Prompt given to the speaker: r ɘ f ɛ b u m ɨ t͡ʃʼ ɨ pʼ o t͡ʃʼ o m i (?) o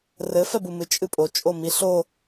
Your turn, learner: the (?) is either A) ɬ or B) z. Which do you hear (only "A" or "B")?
A